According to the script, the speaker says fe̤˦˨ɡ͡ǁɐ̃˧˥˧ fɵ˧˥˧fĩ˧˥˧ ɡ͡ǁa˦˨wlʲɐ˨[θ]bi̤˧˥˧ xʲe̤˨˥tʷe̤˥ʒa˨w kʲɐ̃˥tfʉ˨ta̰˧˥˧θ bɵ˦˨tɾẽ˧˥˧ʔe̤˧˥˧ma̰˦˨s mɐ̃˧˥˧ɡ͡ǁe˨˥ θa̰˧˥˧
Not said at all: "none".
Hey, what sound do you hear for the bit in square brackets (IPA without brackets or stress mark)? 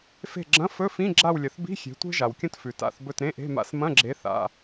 θ